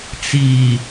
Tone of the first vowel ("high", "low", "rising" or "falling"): low